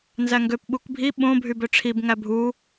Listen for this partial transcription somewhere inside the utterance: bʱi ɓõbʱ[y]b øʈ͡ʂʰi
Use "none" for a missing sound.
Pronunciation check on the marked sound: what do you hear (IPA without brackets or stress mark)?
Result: y